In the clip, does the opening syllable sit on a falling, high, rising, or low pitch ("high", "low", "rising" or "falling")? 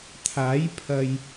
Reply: rising